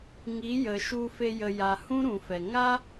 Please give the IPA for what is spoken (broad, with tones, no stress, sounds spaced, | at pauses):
ŋ i˨˦ j ə˨ ʃ u˧ f e˧ j ə˨ j a˨ h ũ˦ ɾ ũ˨ f ɛ˨ ŋ a˦